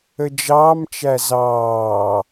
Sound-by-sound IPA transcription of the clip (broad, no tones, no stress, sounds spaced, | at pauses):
ə d͡ʒ ɑː m t͡ʃ æ z ɑː